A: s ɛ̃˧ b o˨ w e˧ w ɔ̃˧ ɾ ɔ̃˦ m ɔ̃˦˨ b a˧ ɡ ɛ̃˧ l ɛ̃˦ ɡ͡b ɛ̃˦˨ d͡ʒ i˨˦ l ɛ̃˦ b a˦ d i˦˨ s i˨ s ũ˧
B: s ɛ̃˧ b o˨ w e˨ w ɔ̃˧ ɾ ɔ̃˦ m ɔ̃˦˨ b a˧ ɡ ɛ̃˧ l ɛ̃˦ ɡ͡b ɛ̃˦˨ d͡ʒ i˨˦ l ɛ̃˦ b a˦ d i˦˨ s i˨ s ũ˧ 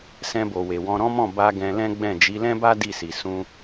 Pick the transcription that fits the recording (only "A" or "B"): B